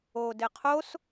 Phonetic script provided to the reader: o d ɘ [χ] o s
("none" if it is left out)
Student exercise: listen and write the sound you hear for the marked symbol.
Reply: qʰ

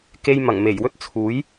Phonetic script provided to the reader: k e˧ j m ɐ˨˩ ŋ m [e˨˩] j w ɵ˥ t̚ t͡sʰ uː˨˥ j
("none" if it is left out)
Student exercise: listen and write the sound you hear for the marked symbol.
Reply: e˨˩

